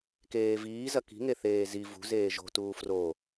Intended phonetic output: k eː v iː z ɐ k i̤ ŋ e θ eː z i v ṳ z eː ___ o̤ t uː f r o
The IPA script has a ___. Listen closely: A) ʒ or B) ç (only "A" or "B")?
A